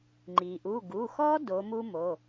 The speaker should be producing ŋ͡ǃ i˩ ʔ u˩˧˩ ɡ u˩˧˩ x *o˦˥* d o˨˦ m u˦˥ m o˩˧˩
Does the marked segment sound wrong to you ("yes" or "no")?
yes